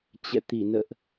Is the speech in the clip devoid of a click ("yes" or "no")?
yes